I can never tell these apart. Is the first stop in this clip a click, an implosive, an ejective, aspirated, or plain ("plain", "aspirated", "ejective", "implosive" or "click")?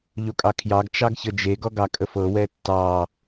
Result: ejective